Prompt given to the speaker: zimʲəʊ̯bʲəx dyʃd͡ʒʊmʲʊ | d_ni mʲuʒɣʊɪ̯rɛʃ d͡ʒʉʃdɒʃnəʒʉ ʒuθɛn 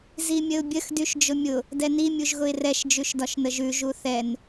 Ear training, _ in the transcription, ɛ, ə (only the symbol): ɛ